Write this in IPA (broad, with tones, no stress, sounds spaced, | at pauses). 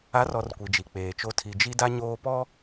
a˨˦ r ɔ˨ r kʷ i˨ d͡ʒ i˨ k͡p eː˨ t͡ʃ o˦ tʰ i˨ d͡ʒ i˦ d a˦ ɲ oː˦ p ɔ˦